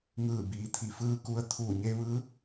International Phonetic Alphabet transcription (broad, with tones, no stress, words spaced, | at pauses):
ŋɯː˧˩biː˩˧ t̪ʰi˩˧fɯː˧ ku˧ə̯ t̪ʰuː˧˩ɲe˧ʋɯː˧˥